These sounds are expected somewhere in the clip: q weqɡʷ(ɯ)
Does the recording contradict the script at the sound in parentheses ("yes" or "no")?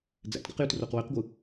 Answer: no